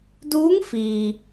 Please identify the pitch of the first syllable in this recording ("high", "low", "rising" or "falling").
rising